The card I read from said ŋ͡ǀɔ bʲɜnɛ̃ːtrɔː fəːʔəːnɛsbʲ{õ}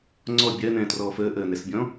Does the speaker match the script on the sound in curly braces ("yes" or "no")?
no